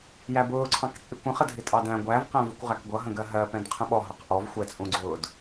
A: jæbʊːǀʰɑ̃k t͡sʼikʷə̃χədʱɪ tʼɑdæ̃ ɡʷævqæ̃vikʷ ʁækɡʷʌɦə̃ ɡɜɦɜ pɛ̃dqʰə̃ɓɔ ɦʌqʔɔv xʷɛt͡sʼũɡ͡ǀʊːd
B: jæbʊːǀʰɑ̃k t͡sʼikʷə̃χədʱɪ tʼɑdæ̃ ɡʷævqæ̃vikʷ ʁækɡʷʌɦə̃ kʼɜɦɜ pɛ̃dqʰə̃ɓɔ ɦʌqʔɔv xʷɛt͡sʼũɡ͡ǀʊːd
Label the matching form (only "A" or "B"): A